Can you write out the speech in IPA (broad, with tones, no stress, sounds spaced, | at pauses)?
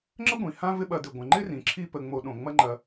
ŋ͡ǁ ə˥ ɡʷ ĩ˩ h ã˦ v ɪ˦ ɓ ɐ˨ d ɪ˩ ɡʷ ə̃˩ ŋ͡ǃ ɪ˥ r ĩ˩ ǁʰ i˦ p ə˨ ŋ͡m o˨ ɗ õ˩ ŋ͡m ɐ˦ ŋ͡ǃ ɐ˨